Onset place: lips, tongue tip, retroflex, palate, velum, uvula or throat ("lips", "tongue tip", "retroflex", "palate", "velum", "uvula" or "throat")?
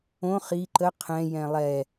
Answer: uvula